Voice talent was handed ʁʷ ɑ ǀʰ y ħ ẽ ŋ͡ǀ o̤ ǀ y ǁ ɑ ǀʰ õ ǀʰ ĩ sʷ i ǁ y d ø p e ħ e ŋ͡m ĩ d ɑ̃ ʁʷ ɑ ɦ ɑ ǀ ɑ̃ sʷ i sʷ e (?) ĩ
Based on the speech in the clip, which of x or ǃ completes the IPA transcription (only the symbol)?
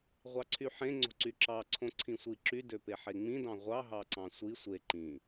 ǃ